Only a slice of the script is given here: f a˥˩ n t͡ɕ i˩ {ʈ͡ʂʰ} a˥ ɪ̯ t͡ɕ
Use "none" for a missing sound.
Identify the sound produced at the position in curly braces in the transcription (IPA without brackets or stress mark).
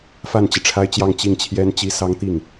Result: ʈ͡ʂʰ